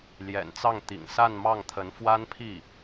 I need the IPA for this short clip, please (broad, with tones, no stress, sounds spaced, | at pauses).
l j ɛ̰˨˩ n t͡s ɑ˥˩ ŋ t̪ ḭ˨˩ ŋ s a˥˧ n m ɑ˥˩ ŋ t̪ʰ ə˧˥ n f w a˥ n pʰ i˥˩